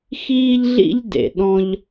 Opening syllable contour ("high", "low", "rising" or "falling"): high